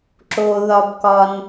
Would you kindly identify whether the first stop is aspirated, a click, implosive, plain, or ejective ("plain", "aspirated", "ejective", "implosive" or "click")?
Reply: click